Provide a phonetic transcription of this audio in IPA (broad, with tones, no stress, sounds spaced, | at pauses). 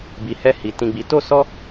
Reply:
b i˨ h ɛ˧ h i˨ t ĩ˧ ɡ͡b i˧ t o˦ s ɔ˦